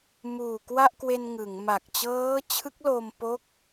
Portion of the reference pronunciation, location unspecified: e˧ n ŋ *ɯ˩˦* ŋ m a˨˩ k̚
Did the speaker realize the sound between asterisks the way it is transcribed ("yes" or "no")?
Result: yes